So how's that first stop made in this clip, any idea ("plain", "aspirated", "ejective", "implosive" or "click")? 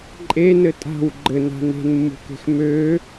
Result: click